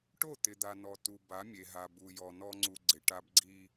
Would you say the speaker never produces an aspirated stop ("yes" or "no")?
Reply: yes